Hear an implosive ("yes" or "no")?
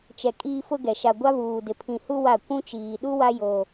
yes